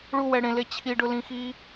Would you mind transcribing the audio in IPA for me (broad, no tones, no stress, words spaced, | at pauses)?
ɭuwɛ ɽẽle t͡ɕʰiɖʊlĩxi